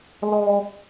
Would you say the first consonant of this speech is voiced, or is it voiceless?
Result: voiced